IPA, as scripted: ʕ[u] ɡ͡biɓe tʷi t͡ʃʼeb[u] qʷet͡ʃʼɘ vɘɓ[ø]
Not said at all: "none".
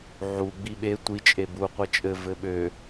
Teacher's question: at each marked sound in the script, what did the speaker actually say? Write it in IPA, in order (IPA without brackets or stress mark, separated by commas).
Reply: u, u, ø